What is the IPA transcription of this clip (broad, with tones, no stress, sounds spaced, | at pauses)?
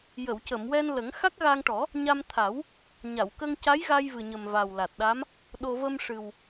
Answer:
j ə˨˩˨ w c ə˨˩˨ m w ɛ˧ n l ə˨˩˦ ŋ x a˦˥ k̚ ɣ a˧ ŋ ʈ ɔ˨˩˦ | ɲ a˧ m t̪ʰ a˨˩˦ w | ɲ a˨˩˨ w k ə˧ ŋ c a˧˥ j ɣ a˧ j v ɨ˨˩ ɲ ə˨˩ m v a˨˩ w l a˨˩ t̚ ɗ a˧˥ m | ɗ o˧ v ə˧ m ʂ ɨ˨˩ w